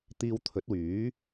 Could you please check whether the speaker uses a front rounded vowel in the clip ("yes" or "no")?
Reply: yes